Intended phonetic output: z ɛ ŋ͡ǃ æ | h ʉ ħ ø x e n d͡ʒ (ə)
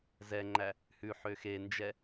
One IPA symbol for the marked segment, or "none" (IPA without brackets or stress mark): ɛ